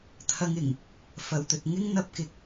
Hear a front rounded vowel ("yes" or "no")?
no